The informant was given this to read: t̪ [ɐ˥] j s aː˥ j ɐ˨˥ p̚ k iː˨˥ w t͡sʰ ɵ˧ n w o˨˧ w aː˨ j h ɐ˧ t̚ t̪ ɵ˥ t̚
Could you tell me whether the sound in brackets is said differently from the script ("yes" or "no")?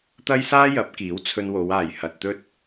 no